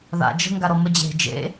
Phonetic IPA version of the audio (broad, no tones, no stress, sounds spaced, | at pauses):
ð a̰ d͡ʒ ə̤ ŋ ɡ a ɾ ɔ m ə d͡ʑ e̤ d͡ʒ ḛ